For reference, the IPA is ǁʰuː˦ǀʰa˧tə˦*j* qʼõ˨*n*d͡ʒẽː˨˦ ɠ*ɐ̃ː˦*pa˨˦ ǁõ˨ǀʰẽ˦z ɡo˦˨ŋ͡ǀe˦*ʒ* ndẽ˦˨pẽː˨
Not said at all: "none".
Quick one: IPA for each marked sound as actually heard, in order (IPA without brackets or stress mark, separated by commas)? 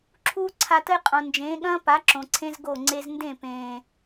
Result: j, n, ɐ̃ː˦, z